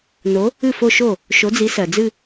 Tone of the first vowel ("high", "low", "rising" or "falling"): rising